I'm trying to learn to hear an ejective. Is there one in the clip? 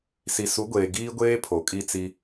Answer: yes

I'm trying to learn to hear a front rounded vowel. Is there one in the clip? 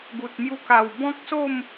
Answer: no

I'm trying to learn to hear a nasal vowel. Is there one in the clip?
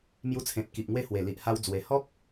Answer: yes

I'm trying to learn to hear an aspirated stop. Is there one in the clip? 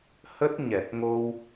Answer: no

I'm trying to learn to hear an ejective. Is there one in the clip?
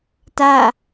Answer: no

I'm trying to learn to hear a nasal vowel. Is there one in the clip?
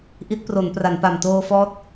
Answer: no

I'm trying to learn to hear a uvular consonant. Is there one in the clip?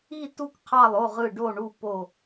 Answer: yes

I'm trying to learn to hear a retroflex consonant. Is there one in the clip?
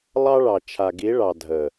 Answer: yes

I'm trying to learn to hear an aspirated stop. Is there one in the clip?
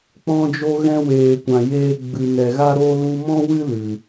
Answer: no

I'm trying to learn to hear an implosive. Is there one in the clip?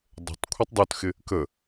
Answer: no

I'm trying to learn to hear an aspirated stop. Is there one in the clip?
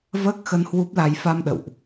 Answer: no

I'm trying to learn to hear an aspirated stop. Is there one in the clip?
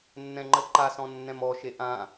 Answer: no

